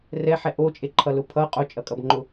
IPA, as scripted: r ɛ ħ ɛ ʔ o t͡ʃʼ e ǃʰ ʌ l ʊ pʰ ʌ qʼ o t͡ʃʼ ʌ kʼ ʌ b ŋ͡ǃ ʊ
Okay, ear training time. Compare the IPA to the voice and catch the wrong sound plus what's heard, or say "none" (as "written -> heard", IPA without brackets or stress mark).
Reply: none